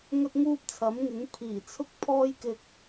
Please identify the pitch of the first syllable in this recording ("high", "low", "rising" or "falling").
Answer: high